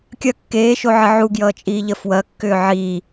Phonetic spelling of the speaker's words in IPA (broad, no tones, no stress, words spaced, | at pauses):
kʲɐ kːeːʃoʕə ʕuɡjʌːt͡ʃʼiːʎə fwɐkːʏː ʕi